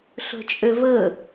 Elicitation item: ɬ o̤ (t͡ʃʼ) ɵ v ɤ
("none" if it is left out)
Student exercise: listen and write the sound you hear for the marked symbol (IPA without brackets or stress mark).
t͡ʃʼ